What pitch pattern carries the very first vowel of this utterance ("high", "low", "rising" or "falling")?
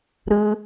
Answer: high